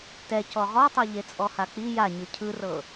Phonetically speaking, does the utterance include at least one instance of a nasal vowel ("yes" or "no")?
no